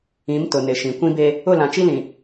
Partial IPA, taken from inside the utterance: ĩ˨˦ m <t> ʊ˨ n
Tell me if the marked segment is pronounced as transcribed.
yes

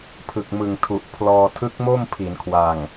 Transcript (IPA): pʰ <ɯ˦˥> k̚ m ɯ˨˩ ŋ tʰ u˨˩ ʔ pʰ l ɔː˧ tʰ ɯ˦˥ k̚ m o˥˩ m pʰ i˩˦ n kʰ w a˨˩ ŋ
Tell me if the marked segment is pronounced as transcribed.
no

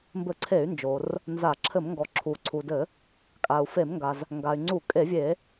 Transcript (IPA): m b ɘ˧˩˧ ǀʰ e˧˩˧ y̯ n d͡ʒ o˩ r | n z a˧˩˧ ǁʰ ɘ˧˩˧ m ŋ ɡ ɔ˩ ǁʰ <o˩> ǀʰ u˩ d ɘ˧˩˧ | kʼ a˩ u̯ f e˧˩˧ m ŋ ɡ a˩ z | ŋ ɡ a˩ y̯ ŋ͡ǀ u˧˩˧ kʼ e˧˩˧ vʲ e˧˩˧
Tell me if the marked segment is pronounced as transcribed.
no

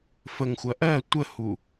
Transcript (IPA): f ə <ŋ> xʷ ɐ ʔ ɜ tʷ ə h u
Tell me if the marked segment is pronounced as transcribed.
yes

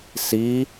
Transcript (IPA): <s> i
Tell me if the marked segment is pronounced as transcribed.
yes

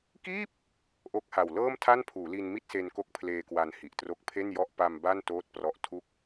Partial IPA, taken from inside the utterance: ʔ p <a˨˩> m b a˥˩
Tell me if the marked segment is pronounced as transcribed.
no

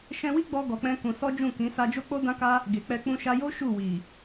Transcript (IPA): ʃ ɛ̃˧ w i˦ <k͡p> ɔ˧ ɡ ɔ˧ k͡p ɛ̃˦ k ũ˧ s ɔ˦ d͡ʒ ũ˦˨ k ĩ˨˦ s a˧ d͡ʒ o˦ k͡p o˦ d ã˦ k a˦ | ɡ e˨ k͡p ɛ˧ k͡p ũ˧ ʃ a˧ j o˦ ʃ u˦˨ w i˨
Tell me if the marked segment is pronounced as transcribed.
no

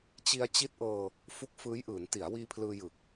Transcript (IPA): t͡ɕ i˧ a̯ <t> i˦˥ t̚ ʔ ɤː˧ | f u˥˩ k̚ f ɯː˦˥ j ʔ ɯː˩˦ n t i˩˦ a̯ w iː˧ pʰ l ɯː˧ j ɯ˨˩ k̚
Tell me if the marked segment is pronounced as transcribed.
no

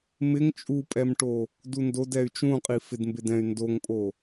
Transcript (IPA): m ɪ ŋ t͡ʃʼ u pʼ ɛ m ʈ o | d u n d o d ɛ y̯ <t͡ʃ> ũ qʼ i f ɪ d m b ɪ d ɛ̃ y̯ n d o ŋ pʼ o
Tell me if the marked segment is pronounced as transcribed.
yes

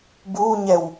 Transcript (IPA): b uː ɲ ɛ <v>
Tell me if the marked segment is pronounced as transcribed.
no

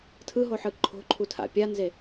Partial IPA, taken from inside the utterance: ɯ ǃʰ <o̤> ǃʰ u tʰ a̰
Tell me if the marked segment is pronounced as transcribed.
yes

